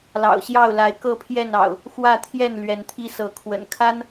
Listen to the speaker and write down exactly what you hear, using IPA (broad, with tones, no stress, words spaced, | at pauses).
lɑ̰˨˩ʊ̯ɕjɑ˥˨ʊ̯la˨˦ɪ̯ kɤ˥˨pʰjɛ˥˨nɑ̰˨˩ʊ̯ | xwä˥˨t̪ʰjɛ˥˨n lɥɛ˨˦nt̪ʰi˦sɤ˨˦kʰwə̰˨˩n kʰa˦n